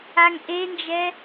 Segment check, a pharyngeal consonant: absent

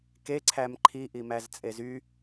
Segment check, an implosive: absent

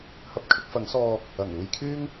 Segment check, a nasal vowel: absent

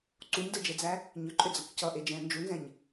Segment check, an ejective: present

